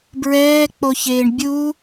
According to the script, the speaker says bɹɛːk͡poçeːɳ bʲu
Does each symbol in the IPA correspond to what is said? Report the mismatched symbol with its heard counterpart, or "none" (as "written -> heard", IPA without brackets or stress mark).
none